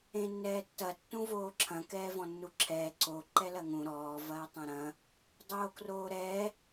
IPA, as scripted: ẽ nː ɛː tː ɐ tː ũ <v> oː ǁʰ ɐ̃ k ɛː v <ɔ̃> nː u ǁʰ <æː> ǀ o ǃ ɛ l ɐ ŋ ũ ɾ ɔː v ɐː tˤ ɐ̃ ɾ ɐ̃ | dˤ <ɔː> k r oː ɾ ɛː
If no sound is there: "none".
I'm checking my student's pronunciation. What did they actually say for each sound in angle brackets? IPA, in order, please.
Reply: v, ɔ̃, ɛː, oː

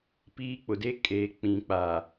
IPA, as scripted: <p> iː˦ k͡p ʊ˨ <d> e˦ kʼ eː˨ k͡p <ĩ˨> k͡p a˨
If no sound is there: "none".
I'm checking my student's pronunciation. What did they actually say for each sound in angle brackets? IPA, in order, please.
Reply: p, d, ĩ˨

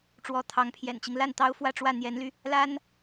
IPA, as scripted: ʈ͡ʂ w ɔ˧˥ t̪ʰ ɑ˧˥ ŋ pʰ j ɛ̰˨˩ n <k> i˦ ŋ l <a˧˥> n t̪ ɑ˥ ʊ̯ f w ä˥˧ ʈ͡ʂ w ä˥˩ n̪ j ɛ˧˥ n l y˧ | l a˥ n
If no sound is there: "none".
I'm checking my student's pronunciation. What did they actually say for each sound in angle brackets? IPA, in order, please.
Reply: t͡ɕ, a˥˩

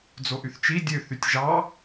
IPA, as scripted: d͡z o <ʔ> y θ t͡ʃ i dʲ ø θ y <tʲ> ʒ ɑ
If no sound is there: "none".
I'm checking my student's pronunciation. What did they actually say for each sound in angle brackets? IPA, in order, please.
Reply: ʔ, tʲ

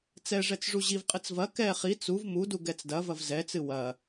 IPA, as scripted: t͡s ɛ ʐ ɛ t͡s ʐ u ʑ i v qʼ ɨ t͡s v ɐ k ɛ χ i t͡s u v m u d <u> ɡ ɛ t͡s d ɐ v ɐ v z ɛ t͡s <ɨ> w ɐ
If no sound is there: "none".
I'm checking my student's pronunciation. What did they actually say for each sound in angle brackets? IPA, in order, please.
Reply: u, ɨ

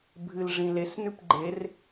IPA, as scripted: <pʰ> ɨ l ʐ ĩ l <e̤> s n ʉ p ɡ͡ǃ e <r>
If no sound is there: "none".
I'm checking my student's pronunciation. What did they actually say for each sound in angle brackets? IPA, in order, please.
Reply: bʱ, e, r

